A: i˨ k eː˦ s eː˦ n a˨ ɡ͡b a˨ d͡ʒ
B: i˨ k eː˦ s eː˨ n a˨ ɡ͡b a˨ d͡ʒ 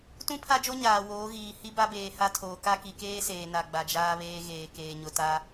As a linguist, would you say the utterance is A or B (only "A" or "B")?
B